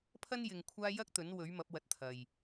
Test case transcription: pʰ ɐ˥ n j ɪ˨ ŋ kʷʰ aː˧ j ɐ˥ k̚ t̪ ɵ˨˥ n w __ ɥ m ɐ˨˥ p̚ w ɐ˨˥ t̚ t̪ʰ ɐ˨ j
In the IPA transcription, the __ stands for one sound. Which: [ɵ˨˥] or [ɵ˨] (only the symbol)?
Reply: ɵ˨˥